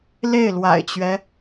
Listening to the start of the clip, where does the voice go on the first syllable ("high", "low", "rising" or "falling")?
falling